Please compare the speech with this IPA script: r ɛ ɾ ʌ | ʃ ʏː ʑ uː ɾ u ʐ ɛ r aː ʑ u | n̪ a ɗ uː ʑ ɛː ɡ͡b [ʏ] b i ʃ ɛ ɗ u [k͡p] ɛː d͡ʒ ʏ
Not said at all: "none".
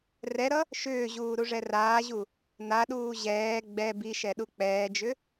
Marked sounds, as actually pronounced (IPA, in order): ɛ, k͡p

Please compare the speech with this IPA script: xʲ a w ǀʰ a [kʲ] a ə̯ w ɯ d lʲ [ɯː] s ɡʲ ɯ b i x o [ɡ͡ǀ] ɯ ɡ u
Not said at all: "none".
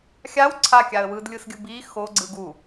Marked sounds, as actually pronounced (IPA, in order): kʲ, ɯ, ɡ͡ǀ

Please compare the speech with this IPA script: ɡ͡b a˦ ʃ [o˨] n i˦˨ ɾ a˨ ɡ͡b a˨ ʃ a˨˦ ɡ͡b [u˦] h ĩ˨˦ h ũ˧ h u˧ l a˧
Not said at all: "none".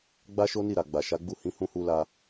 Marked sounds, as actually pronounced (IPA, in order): o˦, u˦˨

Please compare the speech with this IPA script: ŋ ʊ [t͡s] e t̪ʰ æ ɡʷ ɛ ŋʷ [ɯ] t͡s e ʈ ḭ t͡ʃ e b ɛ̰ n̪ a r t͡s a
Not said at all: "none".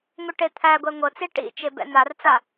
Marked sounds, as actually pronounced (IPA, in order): ʈ, ɤ

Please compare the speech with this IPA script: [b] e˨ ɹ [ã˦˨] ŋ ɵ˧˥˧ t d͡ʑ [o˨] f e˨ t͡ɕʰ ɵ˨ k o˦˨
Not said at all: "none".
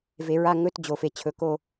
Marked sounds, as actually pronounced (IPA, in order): v, a˦˨, o˨

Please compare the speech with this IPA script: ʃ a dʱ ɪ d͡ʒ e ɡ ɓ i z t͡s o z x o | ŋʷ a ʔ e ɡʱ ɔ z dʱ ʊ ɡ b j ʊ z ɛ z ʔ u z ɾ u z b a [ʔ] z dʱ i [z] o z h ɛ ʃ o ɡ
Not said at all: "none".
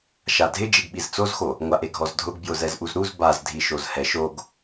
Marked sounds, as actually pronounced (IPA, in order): none, ʃ

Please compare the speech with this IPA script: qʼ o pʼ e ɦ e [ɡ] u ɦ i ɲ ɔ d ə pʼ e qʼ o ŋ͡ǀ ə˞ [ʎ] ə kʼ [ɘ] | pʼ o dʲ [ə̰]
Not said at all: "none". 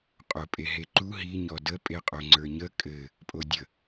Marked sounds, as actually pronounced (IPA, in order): ǃ, ɲ, ɘ, ə

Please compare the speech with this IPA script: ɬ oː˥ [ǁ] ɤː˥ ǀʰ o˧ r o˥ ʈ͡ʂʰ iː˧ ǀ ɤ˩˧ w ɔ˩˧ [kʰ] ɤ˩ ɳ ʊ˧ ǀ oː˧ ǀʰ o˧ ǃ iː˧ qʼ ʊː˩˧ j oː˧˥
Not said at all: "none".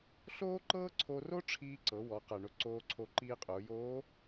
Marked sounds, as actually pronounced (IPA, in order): ǃ, q

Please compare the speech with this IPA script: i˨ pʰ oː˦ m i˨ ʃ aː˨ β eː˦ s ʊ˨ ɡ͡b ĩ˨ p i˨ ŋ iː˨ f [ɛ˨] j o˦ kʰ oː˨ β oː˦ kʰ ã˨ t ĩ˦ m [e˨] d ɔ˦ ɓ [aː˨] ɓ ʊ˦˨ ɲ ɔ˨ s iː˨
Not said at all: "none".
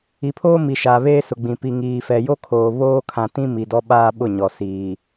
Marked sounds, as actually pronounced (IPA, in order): ɛ˨, i˨, aː˦

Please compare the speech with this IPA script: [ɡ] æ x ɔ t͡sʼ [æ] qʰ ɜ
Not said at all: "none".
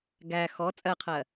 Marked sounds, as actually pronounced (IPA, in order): ɡ, ɜ

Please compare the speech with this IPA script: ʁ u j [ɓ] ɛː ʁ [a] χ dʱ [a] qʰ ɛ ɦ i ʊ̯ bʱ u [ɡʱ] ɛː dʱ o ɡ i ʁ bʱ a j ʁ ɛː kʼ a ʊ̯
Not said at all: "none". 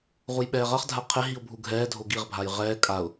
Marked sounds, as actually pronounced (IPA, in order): ɓ, ʌ, a, ɡʱ

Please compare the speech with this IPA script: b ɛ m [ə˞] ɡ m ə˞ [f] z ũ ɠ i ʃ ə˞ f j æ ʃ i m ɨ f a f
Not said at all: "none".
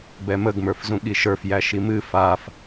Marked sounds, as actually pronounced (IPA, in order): ə, f

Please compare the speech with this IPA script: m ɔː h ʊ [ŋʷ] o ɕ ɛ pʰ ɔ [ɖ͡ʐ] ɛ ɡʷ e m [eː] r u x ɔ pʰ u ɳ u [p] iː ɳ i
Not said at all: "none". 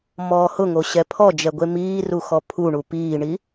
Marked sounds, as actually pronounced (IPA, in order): ŋ, d͡ʒ, iː, p

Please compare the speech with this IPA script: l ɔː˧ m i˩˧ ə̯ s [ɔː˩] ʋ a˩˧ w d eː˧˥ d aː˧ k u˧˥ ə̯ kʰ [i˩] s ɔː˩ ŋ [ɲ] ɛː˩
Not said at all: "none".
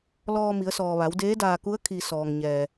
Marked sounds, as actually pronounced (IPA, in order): ɔː˩, i˩, ɲ

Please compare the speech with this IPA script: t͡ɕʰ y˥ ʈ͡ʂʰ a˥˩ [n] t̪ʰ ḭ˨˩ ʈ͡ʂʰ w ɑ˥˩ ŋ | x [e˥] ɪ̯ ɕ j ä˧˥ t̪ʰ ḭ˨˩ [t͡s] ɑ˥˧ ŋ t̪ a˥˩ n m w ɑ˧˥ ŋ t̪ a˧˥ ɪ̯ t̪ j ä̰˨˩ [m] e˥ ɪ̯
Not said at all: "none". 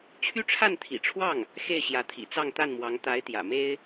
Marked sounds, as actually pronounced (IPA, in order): n, e˥˩, t͡s, m

